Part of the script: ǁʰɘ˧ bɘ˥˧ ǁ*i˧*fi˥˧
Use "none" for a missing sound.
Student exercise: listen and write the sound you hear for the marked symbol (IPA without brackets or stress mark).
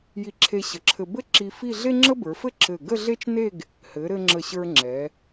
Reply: i˧